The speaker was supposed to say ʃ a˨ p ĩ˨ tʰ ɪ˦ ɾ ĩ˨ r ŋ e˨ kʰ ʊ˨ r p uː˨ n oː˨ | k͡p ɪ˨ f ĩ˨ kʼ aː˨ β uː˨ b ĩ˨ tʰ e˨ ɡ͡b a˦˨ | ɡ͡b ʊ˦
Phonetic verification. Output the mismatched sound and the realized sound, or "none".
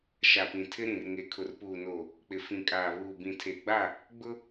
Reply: none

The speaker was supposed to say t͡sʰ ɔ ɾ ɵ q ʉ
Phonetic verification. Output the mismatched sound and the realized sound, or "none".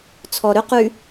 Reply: none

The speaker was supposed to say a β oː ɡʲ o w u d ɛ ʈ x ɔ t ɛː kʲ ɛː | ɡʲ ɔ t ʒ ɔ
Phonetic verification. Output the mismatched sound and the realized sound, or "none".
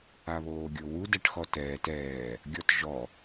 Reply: kʲ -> t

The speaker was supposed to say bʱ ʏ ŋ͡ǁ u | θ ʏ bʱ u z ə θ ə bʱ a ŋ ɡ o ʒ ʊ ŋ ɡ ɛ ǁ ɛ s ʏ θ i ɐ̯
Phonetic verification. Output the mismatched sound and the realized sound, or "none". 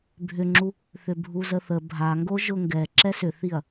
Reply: none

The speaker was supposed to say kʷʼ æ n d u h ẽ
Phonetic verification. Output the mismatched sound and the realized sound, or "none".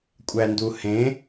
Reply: none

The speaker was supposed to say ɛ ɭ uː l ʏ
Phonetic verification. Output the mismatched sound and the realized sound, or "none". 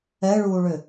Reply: l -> ɭ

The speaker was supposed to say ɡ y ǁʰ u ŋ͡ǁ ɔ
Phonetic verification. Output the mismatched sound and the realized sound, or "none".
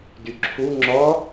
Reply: ɡ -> d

